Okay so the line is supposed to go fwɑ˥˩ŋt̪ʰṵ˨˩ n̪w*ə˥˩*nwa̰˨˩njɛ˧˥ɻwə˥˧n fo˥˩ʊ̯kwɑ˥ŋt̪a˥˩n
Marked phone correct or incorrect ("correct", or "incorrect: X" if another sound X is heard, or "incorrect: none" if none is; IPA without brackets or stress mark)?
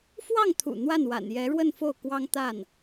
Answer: incorrect: a˥˩